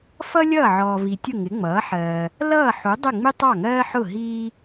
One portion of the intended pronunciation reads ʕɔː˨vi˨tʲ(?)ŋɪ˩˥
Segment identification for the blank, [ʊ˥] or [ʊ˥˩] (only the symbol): ʊ˥˩